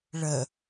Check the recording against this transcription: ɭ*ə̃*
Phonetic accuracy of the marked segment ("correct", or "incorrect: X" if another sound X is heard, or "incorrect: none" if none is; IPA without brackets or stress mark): incorrect: ə